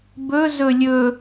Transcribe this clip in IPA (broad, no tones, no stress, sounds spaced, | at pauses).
b ɵ z ɵ lʲ ɵ